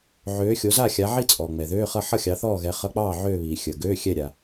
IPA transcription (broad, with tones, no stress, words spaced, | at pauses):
ʕøː˨˦xʲo˨˦za˥˨xʲa˨˦ ʕi˥˨t͡sʼɔː˩ ŋ͡mɛ˩ðøː˧˥˧χʌ˥˨ ħʌ˥˨xʲɑ˨˦θɔː˥˨ɣɛ˨˦ χʌ˧˥˧k͡pɑː˥˨ ʕøː˥˨βiː˩ xʲəː˩ɡøː˧˥˧ xʲɛ˥˨ ɾʲa˩